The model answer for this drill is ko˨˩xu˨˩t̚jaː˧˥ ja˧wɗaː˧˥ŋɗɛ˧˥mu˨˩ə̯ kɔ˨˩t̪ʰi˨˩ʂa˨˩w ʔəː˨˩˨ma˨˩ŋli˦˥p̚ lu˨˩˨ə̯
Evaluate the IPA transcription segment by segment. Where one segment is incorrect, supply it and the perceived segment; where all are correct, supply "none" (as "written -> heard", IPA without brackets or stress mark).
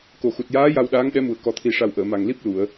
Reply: none